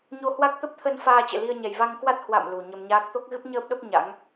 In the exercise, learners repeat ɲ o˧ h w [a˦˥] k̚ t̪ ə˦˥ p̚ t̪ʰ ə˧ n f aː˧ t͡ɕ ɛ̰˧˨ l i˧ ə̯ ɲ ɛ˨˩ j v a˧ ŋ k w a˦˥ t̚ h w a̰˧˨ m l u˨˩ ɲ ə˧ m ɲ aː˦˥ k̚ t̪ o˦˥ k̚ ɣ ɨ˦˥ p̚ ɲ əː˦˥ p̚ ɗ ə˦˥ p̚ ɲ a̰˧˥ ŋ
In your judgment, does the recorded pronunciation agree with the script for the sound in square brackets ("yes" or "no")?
yes